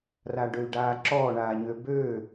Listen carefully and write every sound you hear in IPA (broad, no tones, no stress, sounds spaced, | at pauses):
r a ɖ ø y̯ ɖ aː ǁ ɔː ɳ aː ɲ ø b øː